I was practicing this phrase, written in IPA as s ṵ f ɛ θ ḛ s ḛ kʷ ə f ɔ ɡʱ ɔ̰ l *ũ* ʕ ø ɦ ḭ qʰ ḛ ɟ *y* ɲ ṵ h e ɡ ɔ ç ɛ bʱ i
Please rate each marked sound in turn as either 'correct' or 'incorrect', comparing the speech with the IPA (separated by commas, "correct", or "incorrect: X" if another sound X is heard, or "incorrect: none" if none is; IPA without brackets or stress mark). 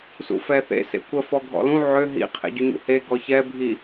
correct, correct